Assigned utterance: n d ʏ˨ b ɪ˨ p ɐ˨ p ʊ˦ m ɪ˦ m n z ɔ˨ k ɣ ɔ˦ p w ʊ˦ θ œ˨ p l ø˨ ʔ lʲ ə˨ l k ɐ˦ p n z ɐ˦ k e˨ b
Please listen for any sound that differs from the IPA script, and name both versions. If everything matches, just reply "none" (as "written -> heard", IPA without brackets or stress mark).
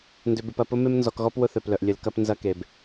ø˨ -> œ˨